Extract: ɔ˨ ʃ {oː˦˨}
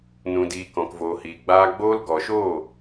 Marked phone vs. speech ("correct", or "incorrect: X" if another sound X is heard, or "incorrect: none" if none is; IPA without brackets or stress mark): correct